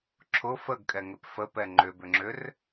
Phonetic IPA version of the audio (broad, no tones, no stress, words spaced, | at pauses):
ǁʰʊ fəɡkʼɛŋʏp fəpɛ ŋ͡ǃʏbʏŋ͡ǁʏr